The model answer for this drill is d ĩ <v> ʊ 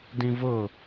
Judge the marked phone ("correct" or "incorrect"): correct